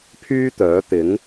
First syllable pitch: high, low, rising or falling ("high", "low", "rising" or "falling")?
high